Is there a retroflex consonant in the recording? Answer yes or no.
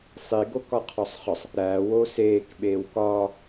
no